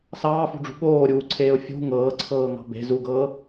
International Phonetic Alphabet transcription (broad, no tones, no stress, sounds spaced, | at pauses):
s ɑː f ṳ ɖ͡ʐ ṳ ɠ oː ɾʲ uː ǀʰ eː ʊ̯ fʲ ṳ ŋ ɤː ǀʰ ɤː ŋ ɑ̤ b e̤ z u ɡ ɤː